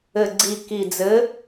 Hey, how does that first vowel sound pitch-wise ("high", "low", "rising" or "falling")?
low